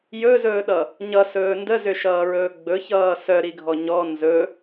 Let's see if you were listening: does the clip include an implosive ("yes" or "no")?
yes